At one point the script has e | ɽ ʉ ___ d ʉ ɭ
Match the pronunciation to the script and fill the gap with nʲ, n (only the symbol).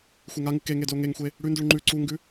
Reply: n